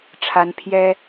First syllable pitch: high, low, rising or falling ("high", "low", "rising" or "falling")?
rising